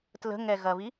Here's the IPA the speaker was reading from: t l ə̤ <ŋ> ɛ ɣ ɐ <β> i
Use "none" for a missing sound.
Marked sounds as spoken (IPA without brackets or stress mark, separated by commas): ŋ, β